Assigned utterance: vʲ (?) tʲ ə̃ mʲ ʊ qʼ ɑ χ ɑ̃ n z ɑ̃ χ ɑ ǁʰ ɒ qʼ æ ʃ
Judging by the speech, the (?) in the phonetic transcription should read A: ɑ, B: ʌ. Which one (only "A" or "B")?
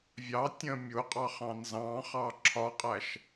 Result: A